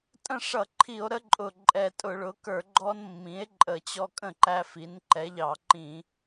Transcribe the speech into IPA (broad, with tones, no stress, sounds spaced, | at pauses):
tʼ ə̃˥˩ ʂ ʌ˧˩˧ ǃʰ i˧˩˧ o̯ ɾ ə˦ ǃʼ ʊ˨˩ ǃʼ ɛ˨˩ tʼ ʊ˧˩˧ ɭ ʊ˩˥ k ə˞˧˩˧ ɡ͡ǃ ɔ˦ n mː ĩ˩˥ e̯ ǃʼ ə˧˩˧ t͡ɕ ɔ˦ kʼ ə̃˥˩ ǃ æ˦ f i˩˥ n ǃ ɛ˩˥ ʎ ɑ˧˩˧ ǃ ĩ˧˩˧